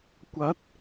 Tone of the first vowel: rising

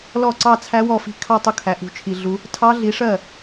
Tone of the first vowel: falling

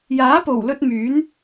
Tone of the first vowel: rising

